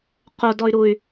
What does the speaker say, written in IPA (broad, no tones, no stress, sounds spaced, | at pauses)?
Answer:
q o d ɔ y̯ ɾ u y̯